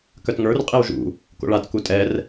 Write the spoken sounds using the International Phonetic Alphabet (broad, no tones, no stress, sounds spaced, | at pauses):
k œ t ŋ ə˞ r qʼ i w ʒ ṵ | k o̰ ɭ a t k u tʼ ɛ r